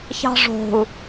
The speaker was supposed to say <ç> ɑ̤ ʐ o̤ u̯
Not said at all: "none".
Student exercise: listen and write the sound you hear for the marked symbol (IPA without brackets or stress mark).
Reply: ç